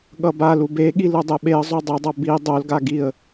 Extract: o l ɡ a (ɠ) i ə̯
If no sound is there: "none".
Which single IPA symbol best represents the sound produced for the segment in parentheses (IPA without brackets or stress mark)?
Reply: ɡ